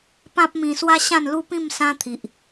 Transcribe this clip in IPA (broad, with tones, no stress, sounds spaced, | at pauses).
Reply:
p ã˦ p̚ m ĩ˧ s w a˦ ɕ ã˥˧ n l u˦ p ĩ˥˧ m s ã˦ t̪ʰ i˨ ʔ